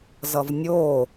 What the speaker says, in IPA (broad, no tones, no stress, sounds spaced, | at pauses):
z ʌ v nʲ o